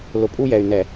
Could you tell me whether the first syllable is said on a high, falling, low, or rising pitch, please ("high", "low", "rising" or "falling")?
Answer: low